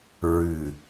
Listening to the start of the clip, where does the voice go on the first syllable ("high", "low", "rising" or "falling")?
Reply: low